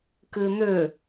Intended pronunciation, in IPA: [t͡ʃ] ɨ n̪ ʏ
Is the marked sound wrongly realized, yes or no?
yes